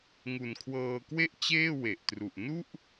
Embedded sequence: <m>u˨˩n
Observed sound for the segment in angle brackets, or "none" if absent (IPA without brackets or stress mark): ŋ